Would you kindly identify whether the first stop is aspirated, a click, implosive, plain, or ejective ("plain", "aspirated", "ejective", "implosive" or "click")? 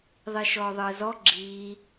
click